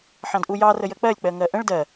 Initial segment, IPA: ħ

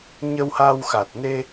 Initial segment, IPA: ɲ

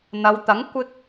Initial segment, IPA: n̪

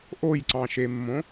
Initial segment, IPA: ʔ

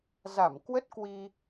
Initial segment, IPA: z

